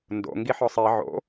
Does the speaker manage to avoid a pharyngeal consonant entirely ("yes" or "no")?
no